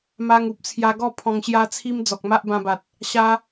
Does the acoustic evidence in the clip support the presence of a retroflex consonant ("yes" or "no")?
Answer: no